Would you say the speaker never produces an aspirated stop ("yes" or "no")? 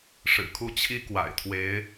no